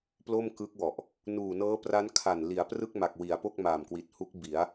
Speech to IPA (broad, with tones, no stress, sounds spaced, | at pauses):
p l o˥˩ m k ɯ˦˥ k̚ w ɔ˨˩ ʔ | n uː˨˩ n ɤː˦˥ p r a˦˥ n kʰ a˨˩ n l i˩˦ a̯ p r ɯ˥˩ k̚ m a˨˩ k̚ w i˩˦ a̯ p o˥˩ k̚ m aː˨˩ m k w i˨˩ t̚ h u˦˥ k̚ b i˩˦ a̯